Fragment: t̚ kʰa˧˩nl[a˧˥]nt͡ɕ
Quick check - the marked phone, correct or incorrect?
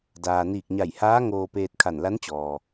correct